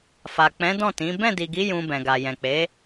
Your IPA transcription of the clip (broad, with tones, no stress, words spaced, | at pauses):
fa˨k͡pɛ̃˨˦ dɔ̃˦˨tĩ˨˦ bɛ̃˦˨di˨ɡi˨˦ jũ˧bɛ̃˨ɡa˨ jɛ̃˨k͡pe˨˦